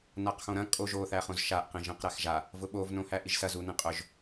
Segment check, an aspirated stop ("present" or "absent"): absent